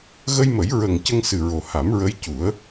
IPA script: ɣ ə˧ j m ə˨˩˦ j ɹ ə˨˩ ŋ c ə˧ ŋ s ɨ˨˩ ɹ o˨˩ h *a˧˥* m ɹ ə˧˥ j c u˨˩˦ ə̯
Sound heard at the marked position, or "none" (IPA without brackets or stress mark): a˨˩˦